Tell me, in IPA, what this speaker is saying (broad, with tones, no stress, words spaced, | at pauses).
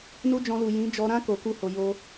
nu˦d͡ʒɔ̃˧lu˨ jĩ˨˦d͡ʒɔ˧ɾã˦ ko˧ku˦ho˧jo˦